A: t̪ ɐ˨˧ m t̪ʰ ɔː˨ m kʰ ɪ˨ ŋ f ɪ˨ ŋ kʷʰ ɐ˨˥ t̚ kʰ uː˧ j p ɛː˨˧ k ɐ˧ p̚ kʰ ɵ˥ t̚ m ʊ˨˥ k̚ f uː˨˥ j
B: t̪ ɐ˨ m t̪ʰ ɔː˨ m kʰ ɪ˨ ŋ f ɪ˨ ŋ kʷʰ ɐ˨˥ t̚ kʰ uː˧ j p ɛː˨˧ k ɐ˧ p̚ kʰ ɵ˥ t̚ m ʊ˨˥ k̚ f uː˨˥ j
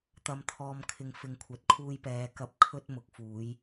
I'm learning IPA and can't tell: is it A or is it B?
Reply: A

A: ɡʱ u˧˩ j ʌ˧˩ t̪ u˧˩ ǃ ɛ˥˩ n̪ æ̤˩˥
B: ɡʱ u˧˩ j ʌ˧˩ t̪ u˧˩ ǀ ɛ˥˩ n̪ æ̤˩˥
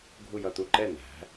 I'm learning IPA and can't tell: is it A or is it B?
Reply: A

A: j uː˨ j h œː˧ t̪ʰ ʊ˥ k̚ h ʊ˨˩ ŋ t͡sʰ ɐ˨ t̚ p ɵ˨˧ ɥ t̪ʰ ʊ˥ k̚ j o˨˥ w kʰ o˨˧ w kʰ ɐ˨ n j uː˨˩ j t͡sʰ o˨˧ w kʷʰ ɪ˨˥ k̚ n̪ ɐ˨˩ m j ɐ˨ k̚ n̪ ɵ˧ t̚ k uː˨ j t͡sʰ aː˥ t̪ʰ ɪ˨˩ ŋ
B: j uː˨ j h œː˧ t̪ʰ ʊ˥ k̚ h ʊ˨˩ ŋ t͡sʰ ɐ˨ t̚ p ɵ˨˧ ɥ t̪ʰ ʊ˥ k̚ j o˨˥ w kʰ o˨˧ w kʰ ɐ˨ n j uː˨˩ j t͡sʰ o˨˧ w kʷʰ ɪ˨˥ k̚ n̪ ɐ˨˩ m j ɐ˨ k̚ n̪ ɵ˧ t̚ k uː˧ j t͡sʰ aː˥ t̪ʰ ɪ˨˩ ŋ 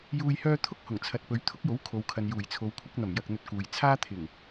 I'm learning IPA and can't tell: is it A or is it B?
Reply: A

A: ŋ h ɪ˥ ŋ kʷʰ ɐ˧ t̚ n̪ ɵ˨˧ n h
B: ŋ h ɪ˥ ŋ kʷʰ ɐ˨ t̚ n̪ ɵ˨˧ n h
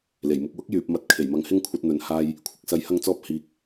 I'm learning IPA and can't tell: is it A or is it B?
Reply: A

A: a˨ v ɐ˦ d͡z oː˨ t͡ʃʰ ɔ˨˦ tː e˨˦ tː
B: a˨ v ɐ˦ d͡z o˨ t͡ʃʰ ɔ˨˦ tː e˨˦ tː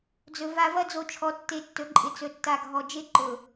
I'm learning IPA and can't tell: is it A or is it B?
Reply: B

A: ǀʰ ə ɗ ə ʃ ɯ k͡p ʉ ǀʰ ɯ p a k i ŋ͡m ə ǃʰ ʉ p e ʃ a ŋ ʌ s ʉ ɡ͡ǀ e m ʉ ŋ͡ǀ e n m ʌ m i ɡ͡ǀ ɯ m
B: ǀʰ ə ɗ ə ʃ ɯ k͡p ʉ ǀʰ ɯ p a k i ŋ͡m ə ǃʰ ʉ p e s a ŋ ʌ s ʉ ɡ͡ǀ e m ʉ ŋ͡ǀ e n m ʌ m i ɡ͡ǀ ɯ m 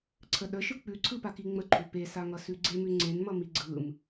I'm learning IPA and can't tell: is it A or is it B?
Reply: B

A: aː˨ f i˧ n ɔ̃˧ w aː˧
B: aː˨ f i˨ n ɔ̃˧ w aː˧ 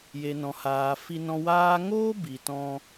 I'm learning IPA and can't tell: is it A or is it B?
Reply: A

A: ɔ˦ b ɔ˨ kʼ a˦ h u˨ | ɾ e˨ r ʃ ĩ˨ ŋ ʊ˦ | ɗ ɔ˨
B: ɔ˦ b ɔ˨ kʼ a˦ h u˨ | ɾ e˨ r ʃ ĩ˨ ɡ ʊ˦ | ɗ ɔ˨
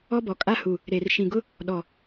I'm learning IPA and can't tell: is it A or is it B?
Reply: B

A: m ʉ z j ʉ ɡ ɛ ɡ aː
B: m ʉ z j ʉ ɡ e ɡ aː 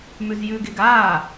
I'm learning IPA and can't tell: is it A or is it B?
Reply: B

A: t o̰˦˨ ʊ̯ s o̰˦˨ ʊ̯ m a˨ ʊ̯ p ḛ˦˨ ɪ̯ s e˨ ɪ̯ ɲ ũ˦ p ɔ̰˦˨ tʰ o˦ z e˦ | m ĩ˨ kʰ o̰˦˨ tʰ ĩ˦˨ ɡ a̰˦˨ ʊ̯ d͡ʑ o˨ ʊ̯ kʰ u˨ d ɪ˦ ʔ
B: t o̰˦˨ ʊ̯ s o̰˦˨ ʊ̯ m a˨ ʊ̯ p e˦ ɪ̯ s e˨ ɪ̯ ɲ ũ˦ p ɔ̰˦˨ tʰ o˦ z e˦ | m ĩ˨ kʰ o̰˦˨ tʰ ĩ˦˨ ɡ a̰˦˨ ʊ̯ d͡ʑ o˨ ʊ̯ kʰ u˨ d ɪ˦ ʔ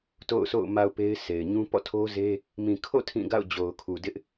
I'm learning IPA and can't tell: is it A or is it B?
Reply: B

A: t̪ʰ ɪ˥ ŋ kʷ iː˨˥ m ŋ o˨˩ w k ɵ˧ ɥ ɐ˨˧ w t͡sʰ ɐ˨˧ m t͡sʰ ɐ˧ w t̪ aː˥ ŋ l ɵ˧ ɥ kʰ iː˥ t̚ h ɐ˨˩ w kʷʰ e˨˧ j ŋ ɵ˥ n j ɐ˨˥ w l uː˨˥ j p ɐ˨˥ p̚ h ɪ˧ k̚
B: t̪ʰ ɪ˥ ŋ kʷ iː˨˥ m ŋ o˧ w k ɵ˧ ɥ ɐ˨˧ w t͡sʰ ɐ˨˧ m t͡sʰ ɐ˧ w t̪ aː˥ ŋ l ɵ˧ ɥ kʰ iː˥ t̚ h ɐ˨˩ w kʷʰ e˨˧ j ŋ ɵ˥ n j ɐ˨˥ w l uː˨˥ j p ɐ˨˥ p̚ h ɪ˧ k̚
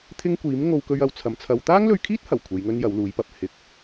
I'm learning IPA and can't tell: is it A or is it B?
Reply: B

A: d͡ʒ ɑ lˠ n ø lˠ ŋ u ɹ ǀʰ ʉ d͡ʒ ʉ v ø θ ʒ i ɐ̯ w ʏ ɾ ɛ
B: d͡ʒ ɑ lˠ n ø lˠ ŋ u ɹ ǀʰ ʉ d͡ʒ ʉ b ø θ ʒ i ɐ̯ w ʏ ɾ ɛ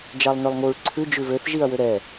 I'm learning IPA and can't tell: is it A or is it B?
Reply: A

